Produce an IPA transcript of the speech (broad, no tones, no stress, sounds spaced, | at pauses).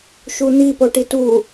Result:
ʃ u n̪ i p o ʈ i t u